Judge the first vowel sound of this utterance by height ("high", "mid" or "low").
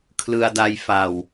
high